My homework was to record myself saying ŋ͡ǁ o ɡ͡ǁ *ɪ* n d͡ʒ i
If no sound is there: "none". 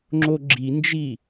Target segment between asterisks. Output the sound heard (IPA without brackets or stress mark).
i